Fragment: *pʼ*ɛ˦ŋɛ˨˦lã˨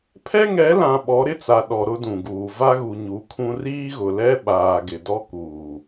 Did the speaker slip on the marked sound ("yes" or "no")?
yes